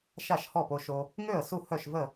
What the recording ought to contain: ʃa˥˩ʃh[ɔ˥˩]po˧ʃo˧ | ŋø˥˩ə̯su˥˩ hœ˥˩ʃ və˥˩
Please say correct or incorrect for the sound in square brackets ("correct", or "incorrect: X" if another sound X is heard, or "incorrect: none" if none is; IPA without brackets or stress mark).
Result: correct